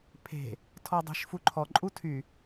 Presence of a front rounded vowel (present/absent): present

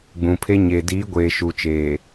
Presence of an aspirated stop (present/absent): present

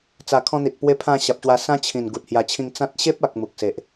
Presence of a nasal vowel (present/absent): present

